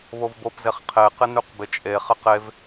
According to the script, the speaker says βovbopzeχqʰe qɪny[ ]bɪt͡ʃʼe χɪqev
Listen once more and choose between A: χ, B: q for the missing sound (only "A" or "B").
B